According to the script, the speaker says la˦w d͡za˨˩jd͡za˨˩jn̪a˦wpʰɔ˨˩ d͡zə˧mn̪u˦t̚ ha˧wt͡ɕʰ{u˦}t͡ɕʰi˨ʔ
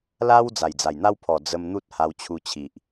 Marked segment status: incorrect: u˧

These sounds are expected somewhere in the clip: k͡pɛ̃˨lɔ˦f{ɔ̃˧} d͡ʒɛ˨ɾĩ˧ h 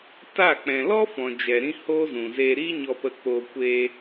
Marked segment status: incorrect: ɔ̃˨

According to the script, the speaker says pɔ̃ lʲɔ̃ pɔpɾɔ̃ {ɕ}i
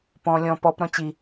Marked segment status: incorrect: t͡ɕ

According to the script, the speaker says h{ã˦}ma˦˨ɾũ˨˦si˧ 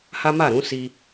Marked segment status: incorrect: a˦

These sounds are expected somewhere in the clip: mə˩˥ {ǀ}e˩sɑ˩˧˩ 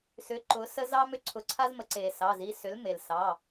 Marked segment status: correct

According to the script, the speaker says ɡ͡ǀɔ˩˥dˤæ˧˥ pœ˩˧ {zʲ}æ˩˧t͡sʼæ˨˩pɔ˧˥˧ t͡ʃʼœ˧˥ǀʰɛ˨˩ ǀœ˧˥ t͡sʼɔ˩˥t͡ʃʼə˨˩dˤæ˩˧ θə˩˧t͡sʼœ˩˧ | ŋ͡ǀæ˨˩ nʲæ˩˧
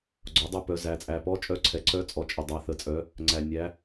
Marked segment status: incorrect: z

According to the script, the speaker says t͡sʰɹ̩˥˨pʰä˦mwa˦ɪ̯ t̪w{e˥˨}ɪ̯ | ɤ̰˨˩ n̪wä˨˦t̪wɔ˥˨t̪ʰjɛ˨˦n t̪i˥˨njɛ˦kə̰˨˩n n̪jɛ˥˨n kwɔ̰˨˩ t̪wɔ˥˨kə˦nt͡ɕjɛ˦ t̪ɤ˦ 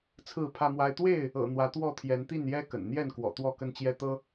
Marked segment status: correct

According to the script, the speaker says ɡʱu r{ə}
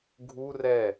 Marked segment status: incorrect: ɛ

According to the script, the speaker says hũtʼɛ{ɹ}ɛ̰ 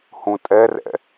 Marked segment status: incorrect: r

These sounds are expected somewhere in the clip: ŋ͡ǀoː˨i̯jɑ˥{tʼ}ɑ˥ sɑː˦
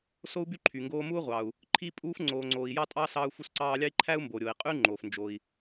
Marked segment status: correct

